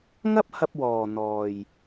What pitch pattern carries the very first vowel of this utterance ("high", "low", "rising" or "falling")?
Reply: high